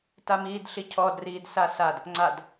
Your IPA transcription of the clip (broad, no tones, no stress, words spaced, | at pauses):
tamiːdɬicʰɔd riːdsasad | ŋ͡ǀad